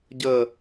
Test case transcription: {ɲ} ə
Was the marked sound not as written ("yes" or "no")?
yes